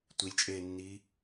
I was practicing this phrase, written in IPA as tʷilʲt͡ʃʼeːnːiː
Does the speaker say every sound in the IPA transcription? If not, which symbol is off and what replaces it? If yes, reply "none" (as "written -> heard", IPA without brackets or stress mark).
none